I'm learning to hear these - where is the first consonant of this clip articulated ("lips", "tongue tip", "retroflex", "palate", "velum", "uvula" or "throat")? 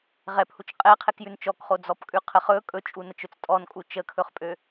uvula